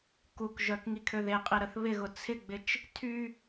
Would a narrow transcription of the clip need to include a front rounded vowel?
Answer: yes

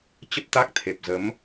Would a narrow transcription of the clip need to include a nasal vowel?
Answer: no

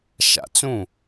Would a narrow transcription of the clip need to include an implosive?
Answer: no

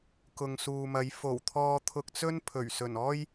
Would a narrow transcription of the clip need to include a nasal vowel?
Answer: no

